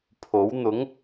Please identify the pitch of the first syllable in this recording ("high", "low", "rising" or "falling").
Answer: rising